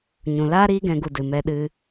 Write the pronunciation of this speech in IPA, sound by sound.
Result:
ɲ ũ˨ l aː˦ ɾ iː˦ ɡ ɛ̃˧ ɡ u˧ d ɨ˨ m ɛ˧ ɗ ɨ˧

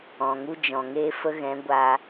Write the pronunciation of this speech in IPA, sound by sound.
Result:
ɔ̃˨ ŋ u˧ d͡ʒ ɔ̃˨ ŋ eː˧ f ə˧ ɣ ɛ̃˨˦ ɡʷ a˧

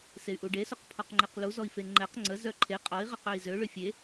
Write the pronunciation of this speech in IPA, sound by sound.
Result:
s e y̯ ʔ u ɖ e s o q pʰ ɔ q ŋ͡ǃ e q l u z ɔ i̯ f e ŋ͡ǃ ɛ q ŋ͡ǀ ə z œ ǃʰ e qʼ ɔ i̯ ʁ ə q œ i̯ z ø ɭ ʏ fʲ e

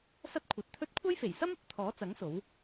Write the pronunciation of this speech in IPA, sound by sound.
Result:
s ɐ˥ t̚ kʷʰ ɐ˨˥ t̚ t̪ʰ ɵ˥ t̚ kʷʰ ɐ˥ j f e˨˩ j s ɐ˥ m ɐ˥ p̚ t̪ʰ ɔː˨˥ t͡s ɐ˨˥ ŋ s o˨˥ w

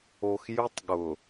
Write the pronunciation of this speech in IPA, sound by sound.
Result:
o˨ x j ʊ˦ tˤ ɠ ʊ˨

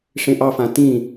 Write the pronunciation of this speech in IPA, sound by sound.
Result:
ʂ ẽ ʔ ɑ f ã t ĩ

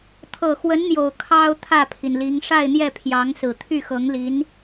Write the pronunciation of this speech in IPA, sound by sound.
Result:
t̪ʰ ɤ˨˩ x w ə˧˥ n n̪ j o˨˩ ʊ̯ kʰ ɑ˥ ʊ̯ t̪ʰ ä˥˩ pʰ i˩ n l i˧˥ ŋ ʂ a˥˧ ɪ̯ n̪ j ɛ˥˩ pʰ j ɑ˧˥ ŋ s ɹ̩˨˩ t̪ʰ y˥˩ x ɤ˧˥ ŋ l i˧˥ n

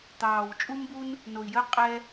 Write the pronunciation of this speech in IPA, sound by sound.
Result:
t̪ ɑː˨˩ w t͡ʃʼ u˦ m b u˦ n | n o˨˩ i̯ j əː˦ qʼ ɛ˦

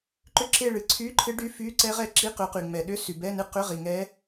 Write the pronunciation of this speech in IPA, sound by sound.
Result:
ǃ ʏ˦˨ ǁ e˦˨ ɭ ɨ˩ ǀʰ y˧˥˧ ǃʰ ɨ˧˥ ɖ y˧˥˧ f y˧˥˧ ǀ ɛ˧˥ ʁ ɛ˧˥ ǁ i˧˥˧ q ʏ˨˩˦ q y˩ ŋ͡m ɛ˩ ɗ ʏ˧˥˧ s y˩ b ɛ˧˥˧ n ɨ˦˨ q ʏ˧˥˧ ʁ i˩ ŋ ɛ˧˥

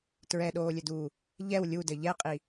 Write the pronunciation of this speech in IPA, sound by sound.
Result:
t ɹ ɛ ɗ oː lʲ ɘ d uː | ʎ ɛ w lʲ u d ɘ ʎ ɛ qʼ i

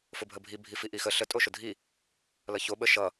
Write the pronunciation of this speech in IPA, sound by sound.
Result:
f ʊ bʱ ə bʱ i bʱ i f i ʔ i x ə ɬ ə tʼ o ʃ ʊ dʱ i | l ʌ ç o ɓ ə ʃ ʌ

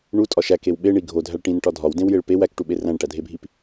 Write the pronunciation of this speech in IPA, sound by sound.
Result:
ɳ u tʼ ɒ ʃ æ k e w ɓ e ɳ i ɡʱ o dʱ æ ɭ ʈ ĩ n ʈ ɒ dʱ ɒ w d ẽ w j e ɭ p e w æ k ʈ u ɓ e r æ̃ ɳ ʈ æ dʱ e bʱ i p

